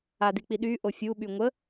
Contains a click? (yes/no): no